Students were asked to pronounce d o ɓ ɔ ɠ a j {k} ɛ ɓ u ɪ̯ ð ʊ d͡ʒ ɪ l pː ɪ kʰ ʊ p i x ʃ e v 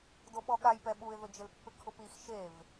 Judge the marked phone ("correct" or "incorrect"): incorrect